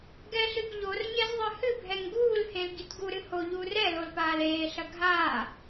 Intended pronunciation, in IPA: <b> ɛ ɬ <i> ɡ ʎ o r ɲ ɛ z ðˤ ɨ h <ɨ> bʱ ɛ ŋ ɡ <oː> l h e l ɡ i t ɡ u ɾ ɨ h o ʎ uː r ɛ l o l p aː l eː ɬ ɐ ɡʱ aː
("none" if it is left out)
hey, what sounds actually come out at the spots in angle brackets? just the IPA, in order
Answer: ɡ, ɨ, ɨ, uː

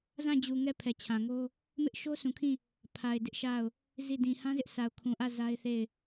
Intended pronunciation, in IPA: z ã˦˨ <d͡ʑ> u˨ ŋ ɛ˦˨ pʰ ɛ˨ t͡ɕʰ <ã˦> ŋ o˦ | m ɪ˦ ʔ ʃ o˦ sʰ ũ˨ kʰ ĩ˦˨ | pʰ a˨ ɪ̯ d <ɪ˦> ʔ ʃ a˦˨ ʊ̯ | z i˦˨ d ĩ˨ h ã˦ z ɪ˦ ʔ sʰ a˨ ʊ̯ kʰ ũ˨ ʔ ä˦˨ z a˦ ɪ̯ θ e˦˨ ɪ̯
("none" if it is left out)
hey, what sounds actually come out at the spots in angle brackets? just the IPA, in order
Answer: d͡ʑ, ã˨, ɪ˦

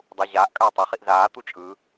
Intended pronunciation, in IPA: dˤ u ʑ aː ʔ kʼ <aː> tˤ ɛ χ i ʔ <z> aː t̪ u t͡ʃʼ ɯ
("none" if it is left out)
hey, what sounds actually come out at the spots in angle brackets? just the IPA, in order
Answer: aː, z

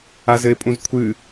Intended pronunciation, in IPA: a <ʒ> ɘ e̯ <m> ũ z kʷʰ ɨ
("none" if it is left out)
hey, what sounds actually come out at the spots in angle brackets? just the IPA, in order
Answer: z, pʼ

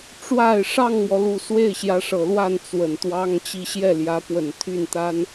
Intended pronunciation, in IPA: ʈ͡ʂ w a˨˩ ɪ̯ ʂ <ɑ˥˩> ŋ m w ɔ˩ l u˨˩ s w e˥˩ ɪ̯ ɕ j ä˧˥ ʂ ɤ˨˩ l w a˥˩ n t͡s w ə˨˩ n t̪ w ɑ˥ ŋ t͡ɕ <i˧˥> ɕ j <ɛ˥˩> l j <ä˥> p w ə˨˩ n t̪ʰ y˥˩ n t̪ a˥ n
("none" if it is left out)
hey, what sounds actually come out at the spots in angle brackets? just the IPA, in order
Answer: ɑ˥˩, i˥˧, ɛ˥˩, ä˧˥

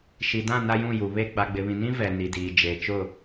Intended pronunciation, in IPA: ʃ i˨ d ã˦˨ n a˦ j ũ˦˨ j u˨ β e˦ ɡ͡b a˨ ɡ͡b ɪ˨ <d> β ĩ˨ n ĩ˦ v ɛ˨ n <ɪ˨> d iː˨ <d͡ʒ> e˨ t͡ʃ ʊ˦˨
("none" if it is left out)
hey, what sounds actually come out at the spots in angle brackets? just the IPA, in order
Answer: none, i˨, d͡ʒ

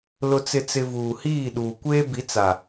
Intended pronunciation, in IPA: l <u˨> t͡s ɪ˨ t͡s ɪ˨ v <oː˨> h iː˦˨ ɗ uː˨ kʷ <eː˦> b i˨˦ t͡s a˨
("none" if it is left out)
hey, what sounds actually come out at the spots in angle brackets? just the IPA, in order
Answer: ʊ˨, uː˨, eː˦

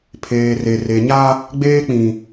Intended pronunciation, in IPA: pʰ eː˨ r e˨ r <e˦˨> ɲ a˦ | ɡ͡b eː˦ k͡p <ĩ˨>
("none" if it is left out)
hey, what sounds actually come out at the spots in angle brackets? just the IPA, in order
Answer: e˨, ĩ˨

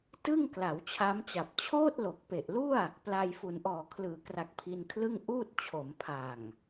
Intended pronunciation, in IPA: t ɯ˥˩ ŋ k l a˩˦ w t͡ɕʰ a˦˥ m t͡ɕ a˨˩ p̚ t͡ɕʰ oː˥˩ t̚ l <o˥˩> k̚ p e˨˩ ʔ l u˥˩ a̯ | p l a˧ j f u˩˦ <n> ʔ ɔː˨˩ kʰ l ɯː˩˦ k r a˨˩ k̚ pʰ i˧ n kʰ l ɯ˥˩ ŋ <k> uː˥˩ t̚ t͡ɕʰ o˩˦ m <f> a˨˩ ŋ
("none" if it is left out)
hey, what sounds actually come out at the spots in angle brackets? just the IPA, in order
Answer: o˨˩, n, ʔ, pʰ

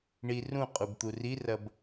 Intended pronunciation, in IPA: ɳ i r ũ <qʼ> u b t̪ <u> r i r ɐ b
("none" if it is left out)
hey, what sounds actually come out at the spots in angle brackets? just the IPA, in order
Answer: qʼ, u

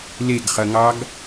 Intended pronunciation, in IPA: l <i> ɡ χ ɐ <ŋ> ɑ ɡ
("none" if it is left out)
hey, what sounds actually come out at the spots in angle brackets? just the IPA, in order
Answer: e, ŋ

